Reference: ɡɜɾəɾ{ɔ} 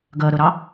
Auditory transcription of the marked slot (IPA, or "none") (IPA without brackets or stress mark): ɑ